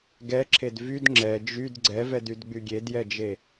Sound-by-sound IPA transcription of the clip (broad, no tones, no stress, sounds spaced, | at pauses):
ɡ ɛ ǁʰ e d v y d ŋ͡ǁ ɛ d͡ʒ y d ɡ͡ǀ ɛ v ɛ d y d ɡ͡b y ɡʲ e d j ɛ d͡ʒ e